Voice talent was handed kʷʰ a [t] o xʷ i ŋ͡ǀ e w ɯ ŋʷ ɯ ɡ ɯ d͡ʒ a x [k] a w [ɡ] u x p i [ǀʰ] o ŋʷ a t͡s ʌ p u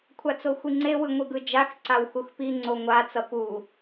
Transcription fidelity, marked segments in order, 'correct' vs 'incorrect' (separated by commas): incorrect, incorrect, incorrect, incorrect